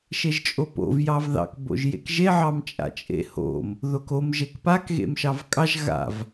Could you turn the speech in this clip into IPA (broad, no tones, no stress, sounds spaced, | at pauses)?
ʃ e ʒ t͡ʃʼ o p o̰ v j ɑ v ð ɑ̰ k b o̰ ʒ j ḛ k ʒ e ʕ ɑ m t͡ʃʼ a̰ t͡ʃʼ ḛ h o̰ m | ð o k o m ʒ e k p a k ɣ ḛ m ʃ ɑ v kʼ ɑ ʒ ɣ a̰ v